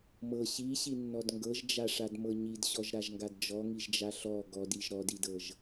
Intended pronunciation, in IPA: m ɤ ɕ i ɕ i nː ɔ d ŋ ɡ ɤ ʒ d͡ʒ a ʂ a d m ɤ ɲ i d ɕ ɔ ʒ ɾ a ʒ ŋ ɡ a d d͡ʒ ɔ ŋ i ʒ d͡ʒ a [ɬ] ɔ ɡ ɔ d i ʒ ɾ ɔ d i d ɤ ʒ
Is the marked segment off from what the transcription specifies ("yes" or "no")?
no